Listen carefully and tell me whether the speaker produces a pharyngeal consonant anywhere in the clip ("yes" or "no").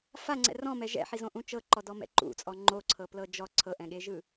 yes